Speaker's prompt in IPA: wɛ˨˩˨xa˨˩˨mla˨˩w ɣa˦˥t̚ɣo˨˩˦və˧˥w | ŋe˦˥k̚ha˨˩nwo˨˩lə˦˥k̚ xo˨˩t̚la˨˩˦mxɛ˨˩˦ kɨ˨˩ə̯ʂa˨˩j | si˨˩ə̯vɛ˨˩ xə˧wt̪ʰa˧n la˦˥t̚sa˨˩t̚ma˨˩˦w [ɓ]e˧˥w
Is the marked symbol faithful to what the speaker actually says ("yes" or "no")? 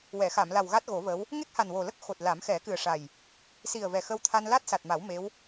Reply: no